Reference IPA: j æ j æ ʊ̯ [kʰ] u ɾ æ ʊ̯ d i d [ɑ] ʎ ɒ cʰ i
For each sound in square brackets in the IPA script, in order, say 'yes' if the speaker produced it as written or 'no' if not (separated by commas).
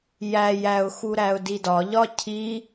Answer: no, no